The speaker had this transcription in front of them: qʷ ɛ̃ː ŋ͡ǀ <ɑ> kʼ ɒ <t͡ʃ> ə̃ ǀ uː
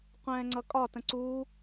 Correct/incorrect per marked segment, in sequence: incorrect: ʌ, incorrect: t

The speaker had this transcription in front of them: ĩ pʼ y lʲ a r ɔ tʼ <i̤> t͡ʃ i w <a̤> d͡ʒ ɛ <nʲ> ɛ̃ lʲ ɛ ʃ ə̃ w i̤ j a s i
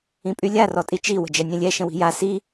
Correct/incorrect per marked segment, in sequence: incorrect: i, incorrect: ə̤, correct

